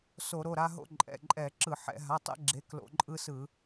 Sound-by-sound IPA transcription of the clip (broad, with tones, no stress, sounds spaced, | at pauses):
s o˧˩˧ ɾ o˩˧˩ ɾ a˦ ɦ o̰˦ ǃʼ ɛ̰˩˧˩ ǃʼ ɛ˧˩˧ ǁ ɯ˧˩˧ ħ ɛ̰˧˩˧ ɦ a˩˧˩ tˤ ɛ̰˦ ɡ͡ǁ e˩˧˩ k l o̰˧˩˧ ǃʼ ɯ˦ s ɯ˧˩˧